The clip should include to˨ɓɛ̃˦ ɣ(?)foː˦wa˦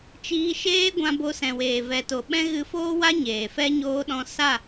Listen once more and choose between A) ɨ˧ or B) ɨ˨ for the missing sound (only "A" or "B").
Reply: A